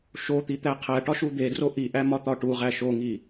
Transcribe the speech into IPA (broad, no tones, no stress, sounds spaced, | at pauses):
ʃ o t̪ i t̪ æ qʰ æ ʈ ɒ ʃ u d̪ e d r o ʔ i ʔ æ m ɒ t̪ ɒ ʈ u ʁ æ ʃ o ŋ i